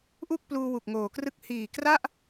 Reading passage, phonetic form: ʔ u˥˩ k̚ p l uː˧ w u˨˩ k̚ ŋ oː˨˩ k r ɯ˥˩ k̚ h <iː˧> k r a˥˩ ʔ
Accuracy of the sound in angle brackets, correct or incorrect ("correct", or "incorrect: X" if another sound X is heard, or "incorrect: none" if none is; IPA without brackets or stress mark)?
incorrect: iː˨˩